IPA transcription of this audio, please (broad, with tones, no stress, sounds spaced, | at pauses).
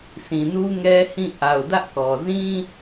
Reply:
s ĩ˨ n u˦ ŋ ɛ˦ h ĩ˦˨ ʔ a˨ ʊ̯ d ä˦ ʔ k ɔ˨ z ĩ˦